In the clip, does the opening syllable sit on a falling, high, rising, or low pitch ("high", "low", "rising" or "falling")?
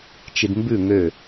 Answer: low